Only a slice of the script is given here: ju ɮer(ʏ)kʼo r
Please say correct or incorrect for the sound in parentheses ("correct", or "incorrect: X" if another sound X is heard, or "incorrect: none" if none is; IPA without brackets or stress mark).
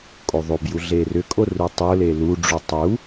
correct